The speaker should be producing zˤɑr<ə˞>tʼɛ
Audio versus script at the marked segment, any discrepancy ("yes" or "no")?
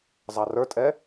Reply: no